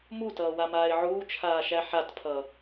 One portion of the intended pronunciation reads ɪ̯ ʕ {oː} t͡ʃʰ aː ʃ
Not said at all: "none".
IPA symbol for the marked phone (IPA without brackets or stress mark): uː